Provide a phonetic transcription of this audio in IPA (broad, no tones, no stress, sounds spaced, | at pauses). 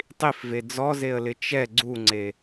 tˤ i f v e d͡z ɔ z e ə̯ l ɪ t͡ʃ ɛ ɡ͡ǀ u ŋ͡ǀ e